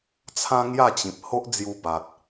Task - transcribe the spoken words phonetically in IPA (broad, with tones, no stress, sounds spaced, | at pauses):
t͡sʰ ã˦ ŋ j a˥˧ t͡ɕ ĩ˨ p̚ h o˦ ʔ d͡z j u˧ b a˨ t̚